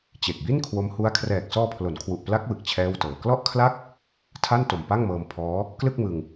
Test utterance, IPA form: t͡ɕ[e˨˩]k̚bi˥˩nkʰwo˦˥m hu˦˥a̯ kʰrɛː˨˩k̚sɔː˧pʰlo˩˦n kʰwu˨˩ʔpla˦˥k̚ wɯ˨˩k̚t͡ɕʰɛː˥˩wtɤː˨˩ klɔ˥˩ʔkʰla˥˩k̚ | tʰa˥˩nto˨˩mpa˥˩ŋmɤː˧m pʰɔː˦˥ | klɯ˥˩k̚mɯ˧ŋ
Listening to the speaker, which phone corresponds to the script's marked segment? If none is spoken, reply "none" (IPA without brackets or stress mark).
e˨˩